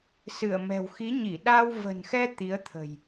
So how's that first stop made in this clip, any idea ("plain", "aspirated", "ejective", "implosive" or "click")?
implosive